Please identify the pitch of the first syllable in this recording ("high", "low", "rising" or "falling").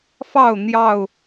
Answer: falling